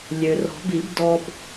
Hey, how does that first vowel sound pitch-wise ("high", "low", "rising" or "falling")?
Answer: low